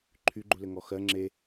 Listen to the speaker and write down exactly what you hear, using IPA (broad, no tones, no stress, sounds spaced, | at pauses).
ǃʰ y ɡ͡ǃ u l ɘ ŋ ɔ x ɜ ŋ͡ǁ e